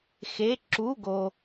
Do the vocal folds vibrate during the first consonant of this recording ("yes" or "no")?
no